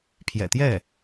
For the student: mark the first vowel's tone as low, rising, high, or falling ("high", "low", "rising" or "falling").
low